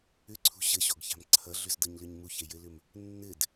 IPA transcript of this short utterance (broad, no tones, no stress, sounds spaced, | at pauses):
ʏ ǀʰ ṳ ɕ ɘ ɕ o ɡ ç a̤ m ǀʰ ʌ ɮ ʏ z d ɤ ɲ l ʏ ɲ m u ç e j ɘ l ʏ m | nː ɘ d